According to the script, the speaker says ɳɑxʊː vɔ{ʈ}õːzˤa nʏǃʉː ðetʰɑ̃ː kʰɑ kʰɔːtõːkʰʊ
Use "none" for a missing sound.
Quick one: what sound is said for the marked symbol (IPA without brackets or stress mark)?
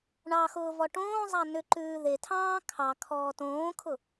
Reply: ʈ